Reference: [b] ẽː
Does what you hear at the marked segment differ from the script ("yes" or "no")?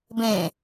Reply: no